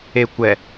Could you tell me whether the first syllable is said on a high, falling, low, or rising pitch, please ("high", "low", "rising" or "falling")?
low